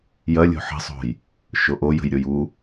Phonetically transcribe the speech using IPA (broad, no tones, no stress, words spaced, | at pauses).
jɐ lʲo̤ħə̤sˤo̤j | ʃoʔo jə̤jɾʲoju